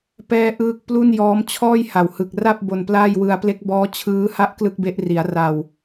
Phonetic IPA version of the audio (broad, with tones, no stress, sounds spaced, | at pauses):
p ɛː˥˩ ʔ ɯː˥˩ k̚ p l u˥˩ n j ɔː˦˥ m t͡ɕʰ ɔː˥˩ j h a˨˩ w h ɯ˨˩ k̚ r a˥˩ p̚ b o˧ n p l aː˥˩ j w ɯ˧ a̯ p l e˦˥ k̚ b ɔː˦˥ t͡ɕʰ ɯː˦˥ h a˥˩ ʔ k l ɯ˥˩ k̚ b e˦˥ ʔ r i˩˦ a̯ r a˨˩ w